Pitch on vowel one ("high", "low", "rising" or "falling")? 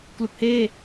low